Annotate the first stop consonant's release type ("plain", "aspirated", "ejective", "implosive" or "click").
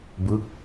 plain